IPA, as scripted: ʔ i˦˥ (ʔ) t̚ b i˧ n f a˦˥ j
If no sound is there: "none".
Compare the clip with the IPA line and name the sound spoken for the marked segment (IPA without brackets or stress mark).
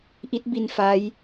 none